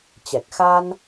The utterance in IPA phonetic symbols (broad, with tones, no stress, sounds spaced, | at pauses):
t͡ɕ ɛ˨˩ k̚ x a˧ n